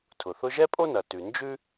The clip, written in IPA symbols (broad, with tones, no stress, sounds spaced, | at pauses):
tʰ ʊ˩ θ ʊ˥ ʒ ɛ˥ pʼ o˥ n ɐ˩ t ʉ˩ n d͡ʒ ʉ˥